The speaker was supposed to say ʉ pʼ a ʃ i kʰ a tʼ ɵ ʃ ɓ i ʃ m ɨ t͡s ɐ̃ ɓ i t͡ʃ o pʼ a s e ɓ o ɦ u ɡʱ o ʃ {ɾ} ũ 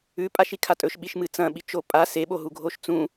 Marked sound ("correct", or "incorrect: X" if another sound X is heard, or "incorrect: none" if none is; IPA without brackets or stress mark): incorrect: t͡s